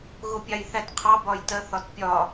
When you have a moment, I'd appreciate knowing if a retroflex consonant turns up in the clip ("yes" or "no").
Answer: no